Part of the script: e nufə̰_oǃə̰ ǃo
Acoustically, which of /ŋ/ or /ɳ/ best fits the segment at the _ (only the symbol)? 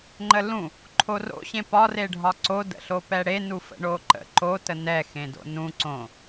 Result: ɳ